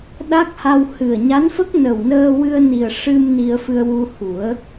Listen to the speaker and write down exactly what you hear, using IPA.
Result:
ɗ a˦˥ k̚ h a˧ w h ɨ˨˩ ə̯ ɲ a˧˥ n f ə˦˥ k̚ n ə˨˩ w n əː˧ w ɨ˧ ə̯ n i˨˩ ə̯ ʂ ɨ˧ m n i˧ ə̯ f ɨ˧ ə̯ w u˧ h u˨˩˦ ə̯

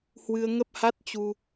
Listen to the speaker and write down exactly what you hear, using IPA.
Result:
h w ɨ˧ ə̯ ŋ ə˦˥ p̚ h a˦˥ t̚ t͡ɕ u˧

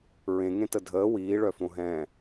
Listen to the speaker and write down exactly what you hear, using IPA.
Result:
ɹ ẽ ŋ ẽ t ə dʱ əː w iː ɭ œ f õ ɦ ɛ̃

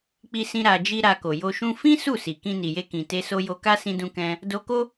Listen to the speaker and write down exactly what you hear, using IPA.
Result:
k͡p i˧ s ĩ˧ ɾ a˧ d͡ʒ i˦ ɾ a˧ k o˨ j o˧ ʃ ũ˦ f ĩ˦ s u˦˨ s i˨ k ĩ˧ n i˨ j e˧ k ĩ˨ t e˧ s o˧ j o˧ k a˦ s ĩ˧ d ũ˧ k ɛ̃˧ | d o˧ k o˦

